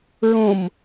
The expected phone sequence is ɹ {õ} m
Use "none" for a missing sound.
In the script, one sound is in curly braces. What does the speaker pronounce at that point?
õ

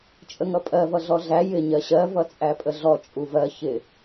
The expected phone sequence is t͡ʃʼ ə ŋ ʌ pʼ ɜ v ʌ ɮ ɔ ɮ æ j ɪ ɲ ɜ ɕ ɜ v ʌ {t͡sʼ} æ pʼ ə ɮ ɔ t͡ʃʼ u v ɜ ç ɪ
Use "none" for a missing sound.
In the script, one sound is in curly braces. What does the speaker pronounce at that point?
t͡sʼ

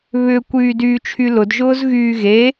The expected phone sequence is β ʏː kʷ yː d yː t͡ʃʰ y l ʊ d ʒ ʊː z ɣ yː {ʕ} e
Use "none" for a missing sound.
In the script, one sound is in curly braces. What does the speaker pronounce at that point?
ɣ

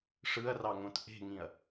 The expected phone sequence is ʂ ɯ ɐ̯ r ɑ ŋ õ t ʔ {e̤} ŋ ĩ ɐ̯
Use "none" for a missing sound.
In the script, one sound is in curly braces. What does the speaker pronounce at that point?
e̤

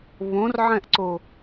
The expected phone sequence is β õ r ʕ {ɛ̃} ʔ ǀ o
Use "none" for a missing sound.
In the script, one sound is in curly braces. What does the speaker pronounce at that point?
ɛ̃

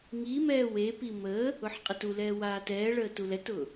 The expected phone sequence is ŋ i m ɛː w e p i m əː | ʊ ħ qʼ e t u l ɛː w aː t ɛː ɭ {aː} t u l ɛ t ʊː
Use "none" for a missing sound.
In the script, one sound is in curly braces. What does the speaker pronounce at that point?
əː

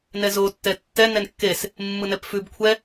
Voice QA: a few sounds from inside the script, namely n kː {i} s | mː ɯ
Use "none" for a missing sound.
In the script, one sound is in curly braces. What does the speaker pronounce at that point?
e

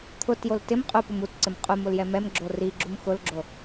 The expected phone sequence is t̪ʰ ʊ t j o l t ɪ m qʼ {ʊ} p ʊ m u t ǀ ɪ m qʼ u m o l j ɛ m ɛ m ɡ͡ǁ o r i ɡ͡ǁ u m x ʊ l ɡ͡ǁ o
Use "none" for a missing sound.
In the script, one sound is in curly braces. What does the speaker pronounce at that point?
u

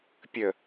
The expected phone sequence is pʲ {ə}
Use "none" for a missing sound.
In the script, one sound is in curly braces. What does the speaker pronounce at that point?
ə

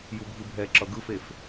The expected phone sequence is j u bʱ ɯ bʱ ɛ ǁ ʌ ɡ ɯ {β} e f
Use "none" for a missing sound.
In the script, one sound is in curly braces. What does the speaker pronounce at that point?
f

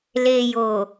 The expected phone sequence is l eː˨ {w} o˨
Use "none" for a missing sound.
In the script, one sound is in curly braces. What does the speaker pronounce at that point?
j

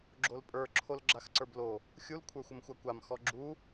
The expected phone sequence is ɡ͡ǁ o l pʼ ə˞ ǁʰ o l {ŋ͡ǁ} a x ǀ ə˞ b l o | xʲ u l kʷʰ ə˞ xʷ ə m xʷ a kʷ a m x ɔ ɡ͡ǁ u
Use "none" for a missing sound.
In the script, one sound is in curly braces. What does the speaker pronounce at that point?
ɡ͡ǁ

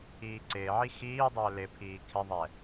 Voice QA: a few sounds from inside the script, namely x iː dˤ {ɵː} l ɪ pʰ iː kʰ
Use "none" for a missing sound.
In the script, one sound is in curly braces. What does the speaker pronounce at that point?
ɵː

